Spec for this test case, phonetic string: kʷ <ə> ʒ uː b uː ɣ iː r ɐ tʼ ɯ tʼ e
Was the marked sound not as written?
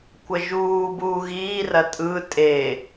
no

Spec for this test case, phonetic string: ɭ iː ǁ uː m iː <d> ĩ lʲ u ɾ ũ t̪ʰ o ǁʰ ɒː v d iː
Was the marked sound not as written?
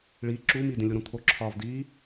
no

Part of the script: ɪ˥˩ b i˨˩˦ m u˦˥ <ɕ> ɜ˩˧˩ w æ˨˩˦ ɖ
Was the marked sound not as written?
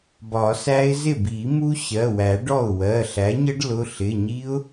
no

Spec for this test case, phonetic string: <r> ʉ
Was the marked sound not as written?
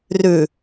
no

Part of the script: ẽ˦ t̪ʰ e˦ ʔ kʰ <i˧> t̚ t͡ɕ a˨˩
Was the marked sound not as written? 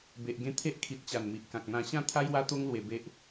yes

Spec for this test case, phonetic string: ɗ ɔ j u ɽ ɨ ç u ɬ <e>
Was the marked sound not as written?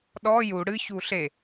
no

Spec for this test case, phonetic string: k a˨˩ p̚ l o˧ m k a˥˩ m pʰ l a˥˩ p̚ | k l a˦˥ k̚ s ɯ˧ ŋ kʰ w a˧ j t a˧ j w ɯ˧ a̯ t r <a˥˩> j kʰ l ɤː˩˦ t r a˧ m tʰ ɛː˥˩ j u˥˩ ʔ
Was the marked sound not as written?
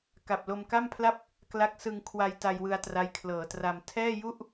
yes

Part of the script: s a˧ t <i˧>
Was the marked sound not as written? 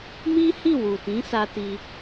no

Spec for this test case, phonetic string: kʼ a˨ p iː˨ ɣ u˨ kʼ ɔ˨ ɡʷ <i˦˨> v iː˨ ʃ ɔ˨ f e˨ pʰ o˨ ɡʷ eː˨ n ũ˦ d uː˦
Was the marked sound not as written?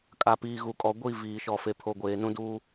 no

